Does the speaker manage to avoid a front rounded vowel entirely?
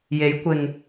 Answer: yes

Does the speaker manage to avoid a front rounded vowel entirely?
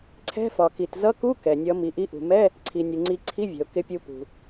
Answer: yes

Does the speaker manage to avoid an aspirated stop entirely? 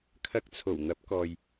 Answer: no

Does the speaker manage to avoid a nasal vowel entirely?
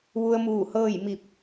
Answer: yes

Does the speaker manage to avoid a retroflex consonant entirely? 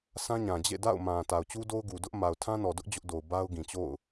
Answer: yes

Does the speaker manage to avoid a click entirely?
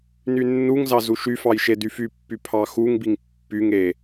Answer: yes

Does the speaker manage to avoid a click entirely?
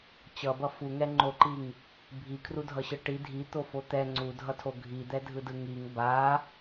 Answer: no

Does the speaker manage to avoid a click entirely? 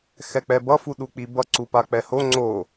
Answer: no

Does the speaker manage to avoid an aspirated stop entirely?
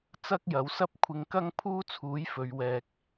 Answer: no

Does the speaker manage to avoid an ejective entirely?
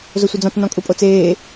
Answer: no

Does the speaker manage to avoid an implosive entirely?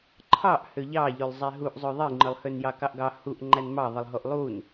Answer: yes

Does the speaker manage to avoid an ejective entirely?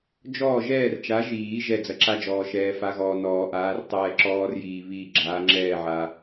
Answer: yes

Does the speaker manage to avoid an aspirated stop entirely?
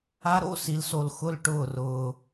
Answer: yes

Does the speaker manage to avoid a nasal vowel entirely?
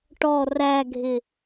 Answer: yes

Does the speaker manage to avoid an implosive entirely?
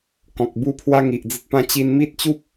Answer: yes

